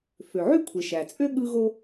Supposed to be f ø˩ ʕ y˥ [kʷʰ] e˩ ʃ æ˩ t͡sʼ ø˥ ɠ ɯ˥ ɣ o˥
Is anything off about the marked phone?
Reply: no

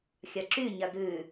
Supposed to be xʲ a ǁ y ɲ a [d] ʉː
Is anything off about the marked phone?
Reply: no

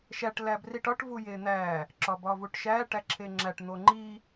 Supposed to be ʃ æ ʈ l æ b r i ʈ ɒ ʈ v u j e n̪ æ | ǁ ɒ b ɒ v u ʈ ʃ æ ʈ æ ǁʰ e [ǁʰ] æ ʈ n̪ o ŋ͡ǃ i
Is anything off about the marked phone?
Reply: yes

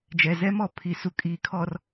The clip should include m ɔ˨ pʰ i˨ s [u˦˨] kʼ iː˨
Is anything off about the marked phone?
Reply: yes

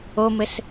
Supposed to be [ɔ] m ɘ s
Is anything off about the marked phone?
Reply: yes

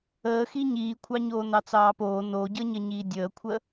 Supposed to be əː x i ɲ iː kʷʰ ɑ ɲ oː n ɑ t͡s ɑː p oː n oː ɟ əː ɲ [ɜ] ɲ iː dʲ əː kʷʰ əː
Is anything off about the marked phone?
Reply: no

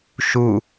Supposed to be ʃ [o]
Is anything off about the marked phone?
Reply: yes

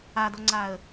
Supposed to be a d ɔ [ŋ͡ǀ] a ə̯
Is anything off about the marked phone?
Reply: no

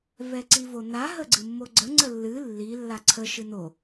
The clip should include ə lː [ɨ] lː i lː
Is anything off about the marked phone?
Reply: no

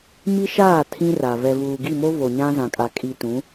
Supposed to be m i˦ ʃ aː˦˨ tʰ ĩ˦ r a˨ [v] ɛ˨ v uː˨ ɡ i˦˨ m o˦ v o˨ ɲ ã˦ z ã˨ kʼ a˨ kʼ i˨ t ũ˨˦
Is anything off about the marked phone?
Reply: no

